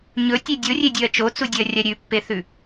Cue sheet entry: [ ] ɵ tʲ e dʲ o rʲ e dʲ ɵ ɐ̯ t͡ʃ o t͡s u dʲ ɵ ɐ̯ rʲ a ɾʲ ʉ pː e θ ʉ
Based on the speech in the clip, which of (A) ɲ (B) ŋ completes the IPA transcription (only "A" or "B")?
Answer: A